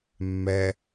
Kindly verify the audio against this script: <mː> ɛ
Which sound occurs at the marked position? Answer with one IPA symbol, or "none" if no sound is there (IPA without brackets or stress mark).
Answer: mː